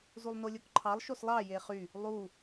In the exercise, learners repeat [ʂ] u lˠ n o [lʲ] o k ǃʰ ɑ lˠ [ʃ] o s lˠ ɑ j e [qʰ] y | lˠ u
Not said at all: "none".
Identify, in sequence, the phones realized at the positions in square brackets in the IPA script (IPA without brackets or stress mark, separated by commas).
z, lʲ, ʃ, χ